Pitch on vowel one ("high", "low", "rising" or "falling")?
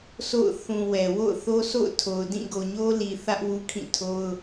falling